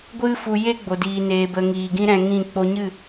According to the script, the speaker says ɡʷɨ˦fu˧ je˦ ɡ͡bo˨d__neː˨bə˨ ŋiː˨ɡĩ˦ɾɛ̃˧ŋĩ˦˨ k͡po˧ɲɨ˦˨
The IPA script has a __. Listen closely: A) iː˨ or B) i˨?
A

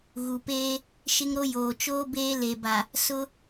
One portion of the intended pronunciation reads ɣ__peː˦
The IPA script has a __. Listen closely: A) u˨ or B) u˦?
A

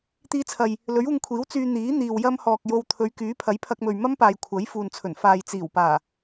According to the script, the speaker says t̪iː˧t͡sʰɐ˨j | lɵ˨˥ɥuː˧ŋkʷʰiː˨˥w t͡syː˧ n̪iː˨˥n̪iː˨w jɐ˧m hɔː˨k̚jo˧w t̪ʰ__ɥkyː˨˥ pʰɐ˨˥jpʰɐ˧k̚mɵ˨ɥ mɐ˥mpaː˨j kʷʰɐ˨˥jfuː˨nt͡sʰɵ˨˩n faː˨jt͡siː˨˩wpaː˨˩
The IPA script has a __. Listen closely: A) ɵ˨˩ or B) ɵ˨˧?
B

